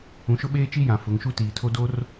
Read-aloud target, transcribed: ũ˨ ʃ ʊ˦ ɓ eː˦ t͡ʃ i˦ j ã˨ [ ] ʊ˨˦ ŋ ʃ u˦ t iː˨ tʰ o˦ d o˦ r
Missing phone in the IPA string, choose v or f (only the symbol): f